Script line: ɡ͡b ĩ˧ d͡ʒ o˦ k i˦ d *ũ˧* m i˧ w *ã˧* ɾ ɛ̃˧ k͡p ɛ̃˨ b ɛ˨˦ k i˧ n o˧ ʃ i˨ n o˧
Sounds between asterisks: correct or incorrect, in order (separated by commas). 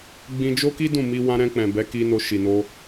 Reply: incorrect, correct